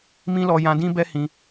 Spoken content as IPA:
m ĩ˦ l ɔ˧ j ã˧ d ĩ˦ b ɛ˦ h ĩ˧

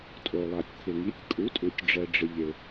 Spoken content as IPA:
tʼ o˩ lˠ a˩ tʲ t̪ʰ ɪ˩ ŋ i˩˥ tʲ kʼ u˩˥ tʼ u˩ tʲ ɖ͡ʐ ɛ˩ ɖ͡ʐ ɪ˩ ʎ ɪ˩

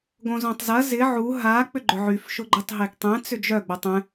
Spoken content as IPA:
ɡ õ z õ tˤ z ɐ z ɪ ʕ u ɦ a k͡p ʏ ɡ͡ǃ ʏ ʕ y f ʃ ʊ ɡ͡ǃ ʏ tˤ ɦ e ɡ tˤ ɛ̃ t͡s ʏ d͡ʒ œ ɡ͡b o tˤ ɛ̃

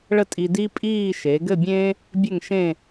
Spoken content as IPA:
ɭ ə˥˧ tʼ i˧ d i˥ pʼ iː˥˧ ʃ e˩˧ ɡ ɘ˥˧ bʲ ẽ˥ | bʲ ɘ˥˧ ŋ ʃ ẽ˥˧

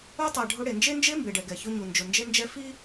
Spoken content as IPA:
u˦ tˤ ɛ˨ ɖʱ ʊ˦ ɽ e˨ n d͡ʒ e˦ n d͡ʒ e˦ m b e˨ ɖ ɛ˨ ɡ ɛ˨ ç ʊ˦ ɲ u˨ n d͡ʒ ʊ˨ n d͡ʒ e˦ n d͡ʒ ɛ˦ f i˦

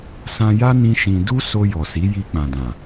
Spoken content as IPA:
s ã˧ j a˦ n ĩ˦ ʃ ĩ˧ d u˦ s o˧ j ɔ˨ s i˨˦ j i˧ k͡p ã˨ d ã˨

